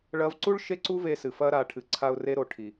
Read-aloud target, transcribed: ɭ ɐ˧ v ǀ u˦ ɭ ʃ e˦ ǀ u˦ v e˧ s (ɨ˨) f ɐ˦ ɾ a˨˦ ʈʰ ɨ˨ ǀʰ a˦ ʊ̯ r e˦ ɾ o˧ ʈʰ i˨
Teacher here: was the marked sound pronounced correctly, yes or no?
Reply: yes